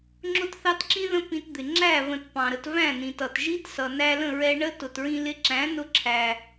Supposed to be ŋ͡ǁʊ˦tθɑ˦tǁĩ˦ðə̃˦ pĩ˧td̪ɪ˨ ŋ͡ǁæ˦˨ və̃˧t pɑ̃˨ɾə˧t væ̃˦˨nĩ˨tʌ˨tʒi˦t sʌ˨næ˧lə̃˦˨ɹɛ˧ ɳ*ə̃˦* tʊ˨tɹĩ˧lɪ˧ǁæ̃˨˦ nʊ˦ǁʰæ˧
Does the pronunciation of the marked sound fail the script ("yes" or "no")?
yes